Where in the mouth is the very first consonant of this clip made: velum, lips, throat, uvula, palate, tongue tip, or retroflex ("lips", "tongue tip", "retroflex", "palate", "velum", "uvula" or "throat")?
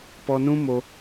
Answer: lips